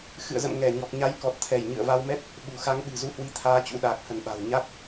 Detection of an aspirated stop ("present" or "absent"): present